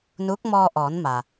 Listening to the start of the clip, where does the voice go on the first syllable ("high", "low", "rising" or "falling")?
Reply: rising